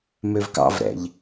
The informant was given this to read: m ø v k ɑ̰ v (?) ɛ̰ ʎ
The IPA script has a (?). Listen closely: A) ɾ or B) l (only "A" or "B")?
A